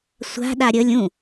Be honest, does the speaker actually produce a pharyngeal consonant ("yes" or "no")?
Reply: no